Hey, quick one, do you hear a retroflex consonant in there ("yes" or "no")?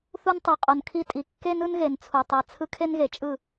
no